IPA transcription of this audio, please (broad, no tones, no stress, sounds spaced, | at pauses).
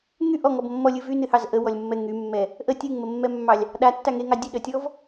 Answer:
ŋ y ʔ ɔ ŋ ɔ b mː ɔ lʲ ɨ v y n ɨ h ɑ z ʔ ə w ɔ lʲ mː ɛ ŋ y mː ɛ | ʔ ə tʲ ɨ ŋ m ə mː ɛ mː ɑ lʲ | ɗ a tː a ŋ e ŋ ɑ dʲ ɨ ɗ ə tʲ ɔ v